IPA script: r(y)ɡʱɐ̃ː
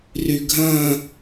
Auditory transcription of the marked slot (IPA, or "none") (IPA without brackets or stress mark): y